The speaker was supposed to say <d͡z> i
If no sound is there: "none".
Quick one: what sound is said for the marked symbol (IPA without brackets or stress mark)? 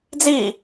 d͡z